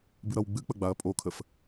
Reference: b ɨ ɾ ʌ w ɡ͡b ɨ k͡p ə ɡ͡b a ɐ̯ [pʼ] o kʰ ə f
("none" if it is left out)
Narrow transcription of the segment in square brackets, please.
pʼ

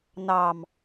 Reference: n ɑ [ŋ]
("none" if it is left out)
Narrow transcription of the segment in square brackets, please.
m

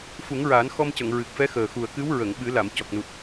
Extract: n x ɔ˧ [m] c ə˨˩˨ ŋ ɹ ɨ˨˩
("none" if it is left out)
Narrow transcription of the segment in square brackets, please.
m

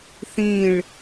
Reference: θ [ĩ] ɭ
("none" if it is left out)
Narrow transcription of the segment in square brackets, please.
ĩ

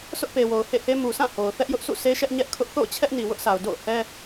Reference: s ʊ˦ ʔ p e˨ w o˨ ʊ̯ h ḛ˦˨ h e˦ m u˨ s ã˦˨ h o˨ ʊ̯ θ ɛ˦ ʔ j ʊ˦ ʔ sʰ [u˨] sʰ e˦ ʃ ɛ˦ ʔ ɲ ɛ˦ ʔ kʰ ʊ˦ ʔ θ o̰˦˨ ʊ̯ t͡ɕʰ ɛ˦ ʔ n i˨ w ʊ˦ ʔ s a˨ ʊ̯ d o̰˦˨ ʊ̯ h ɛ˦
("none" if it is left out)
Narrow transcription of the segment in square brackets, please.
ṵ˦˨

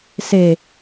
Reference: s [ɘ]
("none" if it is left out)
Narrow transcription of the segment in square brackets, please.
e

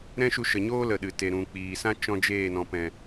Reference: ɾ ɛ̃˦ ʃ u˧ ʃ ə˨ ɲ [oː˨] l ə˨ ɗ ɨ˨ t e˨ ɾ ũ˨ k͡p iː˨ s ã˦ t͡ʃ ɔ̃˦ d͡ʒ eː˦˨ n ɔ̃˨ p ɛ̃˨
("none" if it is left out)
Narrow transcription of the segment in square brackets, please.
oː˦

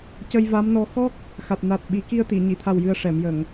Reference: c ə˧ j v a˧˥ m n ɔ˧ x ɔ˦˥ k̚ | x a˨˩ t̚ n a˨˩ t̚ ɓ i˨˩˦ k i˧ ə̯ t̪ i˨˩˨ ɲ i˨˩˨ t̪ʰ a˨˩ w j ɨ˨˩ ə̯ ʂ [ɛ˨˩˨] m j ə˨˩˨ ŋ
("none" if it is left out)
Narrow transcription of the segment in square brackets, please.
ɛ˨˩˨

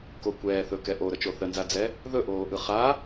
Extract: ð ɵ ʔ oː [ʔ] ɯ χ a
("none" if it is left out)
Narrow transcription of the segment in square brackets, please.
ʔ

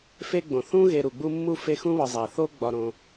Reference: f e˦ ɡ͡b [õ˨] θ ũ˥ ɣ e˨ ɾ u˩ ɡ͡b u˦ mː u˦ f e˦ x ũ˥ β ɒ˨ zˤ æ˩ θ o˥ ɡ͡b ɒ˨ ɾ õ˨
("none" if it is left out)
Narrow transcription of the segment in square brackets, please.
õ˩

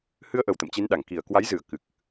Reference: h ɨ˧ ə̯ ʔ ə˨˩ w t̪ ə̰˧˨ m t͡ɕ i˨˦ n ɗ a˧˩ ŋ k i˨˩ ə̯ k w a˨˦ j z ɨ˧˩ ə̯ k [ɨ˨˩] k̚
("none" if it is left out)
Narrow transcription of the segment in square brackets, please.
ɨ˨˩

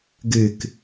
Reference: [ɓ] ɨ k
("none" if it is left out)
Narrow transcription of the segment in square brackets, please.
ɡ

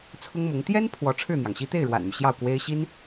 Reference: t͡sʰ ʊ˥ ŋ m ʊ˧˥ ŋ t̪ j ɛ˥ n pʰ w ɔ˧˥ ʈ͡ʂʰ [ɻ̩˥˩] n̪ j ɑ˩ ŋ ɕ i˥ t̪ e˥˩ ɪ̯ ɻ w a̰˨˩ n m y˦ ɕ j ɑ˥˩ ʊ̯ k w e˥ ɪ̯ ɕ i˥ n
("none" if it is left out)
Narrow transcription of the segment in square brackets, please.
ɻ̩˥˩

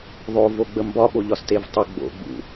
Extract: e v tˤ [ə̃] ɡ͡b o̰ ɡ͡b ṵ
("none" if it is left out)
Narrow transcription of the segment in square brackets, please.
ə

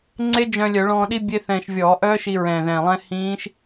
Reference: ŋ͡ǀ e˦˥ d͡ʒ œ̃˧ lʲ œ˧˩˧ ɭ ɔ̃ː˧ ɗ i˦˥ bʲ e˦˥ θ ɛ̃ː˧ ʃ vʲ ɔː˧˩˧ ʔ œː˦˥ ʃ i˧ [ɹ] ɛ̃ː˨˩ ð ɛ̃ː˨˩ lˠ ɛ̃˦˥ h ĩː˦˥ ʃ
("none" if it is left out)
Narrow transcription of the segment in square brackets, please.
ɹ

